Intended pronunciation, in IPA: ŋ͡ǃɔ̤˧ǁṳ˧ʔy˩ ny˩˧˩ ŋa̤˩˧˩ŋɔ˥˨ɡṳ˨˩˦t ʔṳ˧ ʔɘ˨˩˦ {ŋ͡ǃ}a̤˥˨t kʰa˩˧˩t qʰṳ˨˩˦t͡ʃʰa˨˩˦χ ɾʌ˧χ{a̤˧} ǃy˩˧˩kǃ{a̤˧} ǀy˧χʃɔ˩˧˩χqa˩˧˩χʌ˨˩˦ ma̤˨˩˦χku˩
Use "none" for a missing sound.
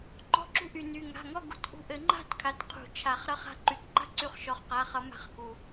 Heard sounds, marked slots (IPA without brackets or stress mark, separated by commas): ŋ͡ǃ, a̤˧, a̤˥˨